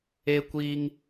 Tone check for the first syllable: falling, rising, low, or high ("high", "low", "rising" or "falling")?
high